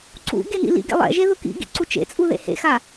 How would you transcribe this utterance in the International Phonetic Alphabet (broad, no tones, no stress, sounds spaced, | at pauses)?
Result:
ǀ ṵ ɡ e n ḭ l ḭ ɡ ḛ lˠ ɛ̰ ʒ e ð ʊ k ḭ ɡ ḭ ǀ u t͡ʃ ḛ t͡sʼ u ð ḛ h ḛ x a